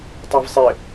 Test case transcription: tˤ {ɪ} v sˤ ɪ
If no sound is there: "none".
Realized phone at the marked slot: ɛ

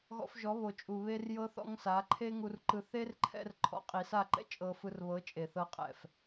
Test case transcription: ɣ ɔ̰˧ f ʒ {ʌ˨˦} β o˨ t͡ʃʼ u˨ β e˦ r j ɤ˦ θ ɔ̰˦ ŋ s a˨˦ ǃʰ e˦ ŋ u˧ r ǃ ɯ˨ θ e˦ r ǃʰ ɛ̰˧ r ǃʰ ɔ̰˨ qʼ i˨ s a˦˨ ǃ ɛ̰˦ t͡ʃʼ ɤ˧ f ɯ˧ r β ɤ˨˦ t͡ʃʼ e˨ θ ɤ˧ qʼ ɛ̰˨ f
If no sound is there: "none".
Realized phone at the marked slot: ɔ˨˦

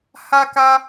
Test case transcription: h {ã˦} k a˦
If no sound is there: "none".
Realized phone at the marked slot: a˦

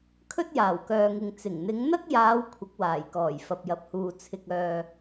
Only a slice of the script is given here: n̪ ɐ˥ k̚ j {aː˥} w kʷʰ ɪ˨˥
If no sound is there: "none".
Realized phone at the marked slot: aː˨˧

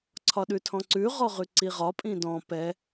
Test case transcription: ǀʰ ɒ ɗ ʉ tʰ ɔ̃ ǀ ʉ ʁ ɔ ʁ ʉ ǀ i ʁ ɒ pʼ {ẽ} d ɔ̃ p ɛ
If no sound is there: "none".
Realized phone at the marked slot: ĩ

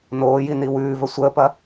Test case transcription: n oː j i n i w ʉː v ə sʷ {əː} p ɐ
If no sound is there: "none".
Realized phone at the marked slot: əː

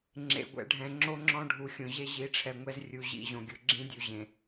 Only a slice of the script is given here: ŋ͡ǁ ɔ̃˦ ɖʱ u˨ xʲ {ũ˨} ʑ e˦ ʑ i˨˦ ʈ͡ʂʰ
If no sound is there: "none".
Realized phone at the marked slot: õ˨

